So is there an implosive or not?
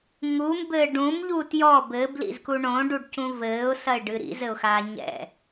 no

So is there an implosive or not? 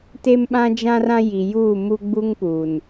yes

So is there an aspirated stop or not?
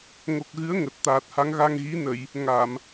no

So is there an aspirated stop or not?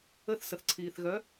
yes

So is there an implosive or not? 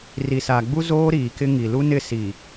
no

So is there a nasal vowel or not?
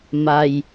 no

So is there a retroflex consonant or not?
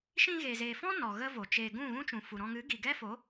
no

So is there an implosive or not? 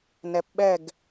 yes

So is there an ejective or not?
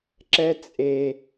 yes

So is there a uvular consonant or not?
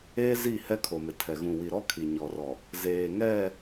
no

